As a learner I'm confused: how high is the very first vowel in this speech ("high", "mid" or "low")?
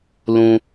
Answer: high